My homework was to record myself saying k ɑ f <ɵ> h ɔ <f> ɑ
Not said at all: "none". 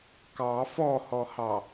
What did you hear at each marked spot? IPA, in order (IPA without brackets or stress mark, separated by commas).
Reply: ɔ, h